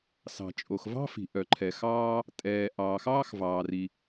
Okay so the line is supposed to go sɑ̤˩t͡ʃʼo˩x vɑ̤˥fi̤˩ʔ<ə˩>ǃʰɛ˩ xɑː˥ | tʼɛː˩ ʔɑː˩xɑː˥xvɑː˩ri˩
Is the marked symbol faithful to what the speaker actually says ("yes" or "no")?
no